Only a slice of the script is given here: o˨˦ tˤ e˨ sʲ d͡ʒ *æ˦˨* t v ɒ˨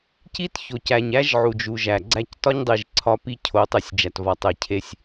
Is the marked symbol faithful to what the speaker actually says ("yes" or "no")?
no